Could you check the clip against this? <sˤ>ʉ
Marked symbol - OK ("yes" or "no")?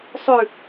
yes